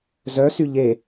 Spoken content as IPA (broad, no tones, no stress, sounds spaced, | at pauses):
z œ s y ʎ e